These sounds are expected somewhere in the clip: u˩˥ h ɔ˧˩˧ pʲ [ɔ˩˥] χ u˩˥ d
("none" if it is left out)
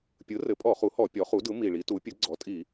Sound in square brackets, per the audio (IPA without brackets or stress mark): ɔ˩˥